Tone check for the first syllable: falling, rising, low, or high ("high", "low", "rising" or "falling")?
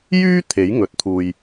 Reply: high